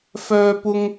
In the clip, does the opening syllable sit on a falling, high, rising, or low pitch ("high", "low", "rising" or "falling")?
high